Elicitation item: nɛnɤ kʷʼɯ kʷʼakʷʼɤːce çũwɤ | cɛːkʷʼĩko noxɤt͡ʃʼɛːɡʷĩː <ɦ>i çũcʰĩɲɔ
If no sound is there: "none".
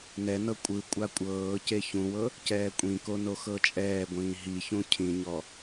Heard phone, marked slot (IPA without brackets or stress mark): ɦ